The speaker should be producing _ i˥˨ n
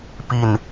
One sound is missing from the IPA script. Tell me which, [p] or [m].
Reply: p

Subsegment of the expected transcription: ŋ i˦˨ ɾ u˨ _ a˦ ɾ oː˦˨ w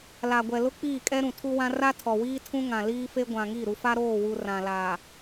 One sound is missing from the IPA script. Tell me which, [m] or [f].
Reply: f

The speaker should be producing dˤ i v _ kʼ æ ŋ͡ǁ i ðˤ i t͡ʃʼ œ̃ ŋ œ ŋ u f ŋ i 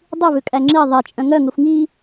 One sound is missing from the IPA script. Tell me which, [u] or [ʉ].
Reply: ʉ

